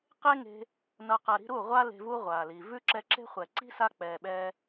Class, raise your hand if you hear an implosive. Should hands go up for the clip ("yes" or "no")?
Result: yes